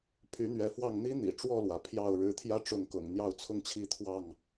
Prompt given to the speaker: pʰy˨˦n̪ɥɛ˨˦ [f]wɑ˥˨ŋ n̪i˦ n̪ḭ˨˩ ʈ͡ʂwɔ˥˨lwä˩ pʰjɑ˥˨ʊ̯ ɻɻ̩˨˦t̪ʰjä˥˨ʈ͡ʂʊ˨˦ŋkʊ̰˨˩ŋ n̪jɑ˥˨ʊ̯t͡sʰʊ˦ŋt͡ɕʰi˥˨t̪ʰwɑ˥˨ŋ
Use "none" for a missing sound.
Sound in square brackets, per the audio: f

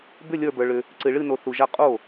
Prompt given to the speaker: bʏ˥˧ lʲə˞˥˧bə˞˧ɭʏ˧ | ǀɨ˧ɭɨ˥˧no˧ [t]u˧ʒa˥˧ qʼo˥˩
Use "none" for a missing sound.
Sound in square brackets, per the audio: θ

